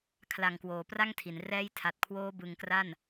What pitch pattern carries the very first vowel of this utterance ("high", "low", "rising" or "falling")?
low